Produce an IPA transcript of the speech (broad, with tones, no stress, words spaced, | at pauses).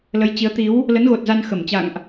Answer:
lə˨˦jt͡ɕi˨˦ə̯ t̪i˨˦w | lə˨˦nɣo˨˩t̚za˧n xə˧˩m t͡ɕa̰˧˨ŋʔ